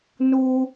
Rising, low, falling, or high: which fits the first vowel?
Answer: high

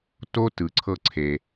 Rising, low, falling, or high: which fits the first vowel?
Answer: high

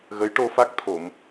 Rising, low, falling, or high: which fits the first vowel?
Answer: rising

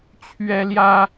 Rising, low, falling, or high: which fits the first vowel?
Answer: high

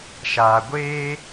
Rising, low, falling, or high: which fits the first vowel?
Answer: low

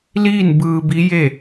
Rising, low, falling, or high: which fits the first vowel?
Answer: falling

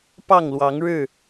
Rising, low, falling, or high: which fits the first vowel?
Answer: falling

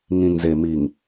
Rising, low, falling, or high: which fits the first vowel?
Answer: low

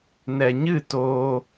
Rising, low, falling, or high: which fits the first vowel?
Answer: low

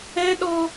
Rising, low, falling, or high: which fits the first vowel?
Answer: high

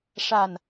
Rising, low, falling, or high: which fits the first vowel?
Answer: low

